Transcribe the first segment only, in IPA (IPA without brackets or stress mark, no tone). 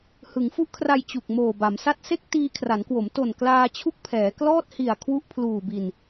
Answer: h